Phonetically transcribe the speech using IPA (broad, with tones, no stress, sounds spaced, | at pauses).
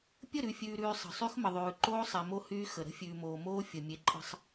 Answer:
pʲ ə˦˨ ɾ ʉ˨ fʲ ʉː˨ ɾ ʉː˨ sˤ ə̤˨ sˤ y˦ x m ə˨ ðˤ ʉː˨ ǃ oː˦ sˤ e˨ m o˦ h yː˦ x ə˨ ɾ ə̤˦ fʲ ʉː˨ m oː˨ m oː˦ fʲ ə˨ mʲ e˦ ǃʼ ə̤˦ sˤ